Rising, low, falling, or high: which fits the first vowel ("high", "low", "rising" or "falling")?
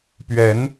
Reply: rising